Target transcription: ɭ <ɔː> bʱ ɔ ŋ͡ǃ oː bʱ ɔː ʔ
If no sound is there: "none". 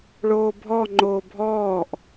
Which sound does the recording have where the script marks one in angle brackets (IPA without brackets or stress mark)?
oː